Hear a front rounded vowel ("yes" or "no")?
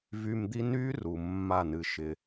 yes